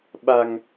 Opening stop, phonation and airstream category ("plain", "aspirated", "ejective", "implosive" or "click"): implosive